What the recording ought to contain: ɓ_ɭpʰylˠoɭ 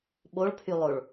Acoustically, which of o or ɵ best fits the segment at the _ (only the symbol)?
o